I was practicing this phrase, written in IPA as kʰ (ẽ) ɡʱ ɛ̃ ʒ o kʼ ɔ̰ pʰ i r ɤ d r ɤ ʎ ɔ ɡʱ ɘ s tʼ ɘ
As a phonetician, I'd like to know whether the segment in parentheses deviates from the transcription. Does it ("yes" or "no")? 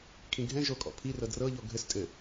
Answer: yes